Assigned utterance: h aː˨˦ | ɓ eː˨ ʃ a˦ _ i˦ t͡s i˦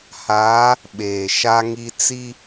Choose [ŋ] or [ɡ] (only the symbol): ŋ